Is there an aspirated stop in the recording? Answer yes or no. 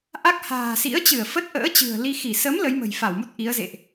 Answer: no